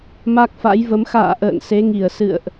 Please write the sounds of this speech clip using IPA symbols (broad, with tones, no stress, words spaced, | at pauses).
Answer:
ma˦˥k̚fa̰˧˥jvə˨˦m xa̰ː˧˨ʔə̰ː˧˨n se˨˦ŋi˧˩ə̯ sɨ̰˧˨ə̯ʔ